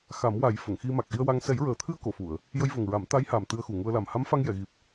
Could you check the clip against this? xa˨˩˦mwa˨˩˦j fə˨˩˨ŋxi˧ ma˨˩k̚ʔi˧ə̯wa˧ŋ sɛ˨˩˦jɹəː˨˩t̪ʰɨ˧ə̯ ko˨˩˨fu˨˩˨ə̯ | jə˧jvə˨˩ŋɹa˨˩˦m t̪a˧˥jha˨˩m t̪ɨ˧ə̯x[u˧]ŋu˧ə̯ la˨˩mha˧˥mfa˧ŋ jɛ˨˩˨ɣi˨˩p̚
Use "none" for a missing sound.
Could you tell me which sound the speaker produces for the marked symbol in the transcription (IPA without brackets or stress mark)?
u˨˩